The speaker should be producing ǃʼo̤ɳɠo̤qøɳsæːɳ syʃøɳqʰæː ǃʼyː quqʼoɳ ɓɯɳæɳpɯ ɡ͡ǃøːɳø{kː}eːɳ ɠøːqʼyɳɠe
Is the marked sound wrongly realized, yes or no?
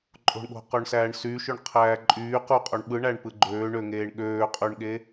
yes